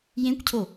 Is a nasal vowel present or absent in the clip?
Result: present